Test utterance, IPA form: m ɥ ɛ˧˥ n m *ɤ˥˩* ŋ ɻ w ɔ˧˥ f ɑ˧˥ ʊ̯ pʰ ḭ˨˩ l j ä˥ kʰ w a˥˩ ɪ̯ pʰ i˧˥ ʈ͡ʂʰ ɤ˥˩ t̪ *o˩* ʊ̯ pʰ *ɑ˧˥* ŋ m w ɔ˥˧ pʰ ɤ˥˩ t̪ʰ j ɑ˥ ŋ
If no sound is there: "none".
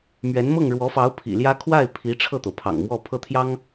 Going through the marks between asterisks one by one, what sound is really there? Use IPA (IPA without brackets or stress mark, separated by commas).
ɤ˥˩, o˩, ɑ̰˨˩